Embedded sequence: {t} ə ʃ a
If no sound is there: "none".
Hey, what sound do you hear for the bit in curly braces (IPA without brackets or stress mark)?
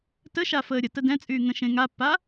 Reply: t